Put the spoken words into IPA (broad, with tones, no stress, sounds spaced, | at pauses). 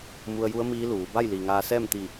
m u˧ ə̯ j u˧˥ ə̯ m iː˧˥ l uː˩˧ b a˥˨ j l iː˩ ŋ aː˧ s ɛː˥˨ m t̪ i˧˩